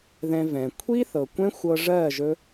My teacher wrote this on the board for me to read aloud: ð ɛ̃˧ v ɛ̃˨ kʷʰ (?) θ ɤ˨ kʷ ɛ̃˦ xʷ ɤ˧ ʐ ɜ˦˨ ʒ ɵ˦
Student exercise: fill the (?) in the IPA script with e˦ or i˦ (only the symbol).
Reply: i˦